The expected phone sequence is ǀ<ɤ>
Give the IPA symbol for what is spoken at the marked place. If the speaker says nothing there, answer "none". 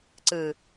ɯ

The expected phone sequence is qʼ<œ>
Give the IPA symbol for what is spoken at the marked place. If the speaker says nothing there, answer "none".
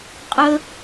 ə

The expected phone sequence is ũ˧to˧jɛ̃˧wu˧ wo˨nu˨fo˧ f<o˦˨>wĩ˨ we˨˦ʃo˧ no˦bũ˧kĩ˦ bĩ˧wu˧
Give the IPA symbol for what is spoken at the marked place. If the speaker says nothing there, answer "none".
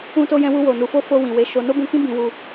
o˧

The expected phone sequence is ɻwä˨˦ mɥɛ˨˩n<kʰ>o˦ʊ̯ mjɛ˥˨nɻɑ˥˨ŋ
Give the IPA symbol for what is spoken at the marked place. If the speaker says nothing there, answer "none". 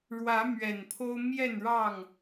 pʰ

